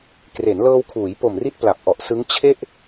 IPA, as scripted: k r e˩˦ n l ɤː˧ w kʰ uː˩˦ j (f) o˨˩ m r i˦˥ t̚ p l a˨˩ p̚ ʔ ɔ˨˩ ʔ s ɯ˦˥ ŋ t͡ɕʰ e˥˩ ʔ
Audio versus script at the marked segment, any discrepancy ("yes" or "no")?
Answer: yes